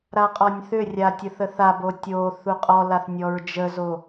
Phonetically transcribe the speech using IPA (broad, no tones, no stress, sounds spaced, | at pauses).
ɾ a qʼ ɔ nʲ θ ʏ rʲ a tʲ ə θ ə θ a b o tʲ o θ u qʼ ɔ l a θ nʲ ɔ ɹ d͡ʒ ə z o